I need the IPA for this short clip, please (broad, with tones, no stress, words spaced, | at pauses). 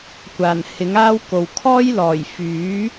kʷaː˨˩nhɪ˨˥ŋaː˥w ko˨wkʰɔː˥j lɔː˨˩jfyː˨˥